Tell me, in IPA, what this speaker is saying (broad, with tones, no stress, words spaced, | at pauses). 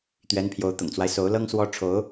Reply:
t̪ɥɛ˧˥npʰjo˧˥ʊ̯ t̪ʊ̰˨˩ŋt͡swa˦ɪ̯so˧˥ʊ̯lɤ˥ŋ swɔ˥ ʈ͡ʂʰo˧˥ʊ̯